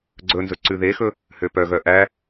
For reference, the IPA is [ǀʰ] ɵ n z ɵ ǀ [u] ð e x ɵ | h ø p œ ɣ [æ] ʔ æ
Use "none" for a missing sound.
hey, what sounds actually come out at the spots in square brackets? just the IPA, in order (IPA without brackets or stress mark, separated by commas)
ɡ͡ǀ, ʉ, œ